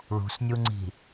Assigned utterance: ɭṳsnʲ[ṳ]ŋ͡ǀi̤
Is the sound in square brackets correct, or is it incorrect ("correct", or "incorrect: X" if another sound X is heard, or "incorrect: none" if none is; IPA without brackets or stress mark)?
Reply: incorrect: u